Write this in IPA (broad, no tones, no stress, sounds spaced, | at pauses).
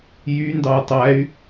j y n d ɑ u̯ tˤ æ y̯